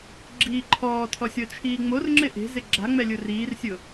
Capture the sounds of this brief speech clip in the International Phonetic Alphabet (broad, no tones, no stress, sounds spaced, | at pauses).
ɡ͡ǁ iː ǃʰ ɔː tʰ ɔ sʲ ɔ t͡ʃʰ iː ŋ͡m o r ŋ͡ǁ ɪ ʔ e̤ z ɪ ɡ͡ǁ a ŋ͡m ɛ lʲ ʊ r iː r sʲ ʊ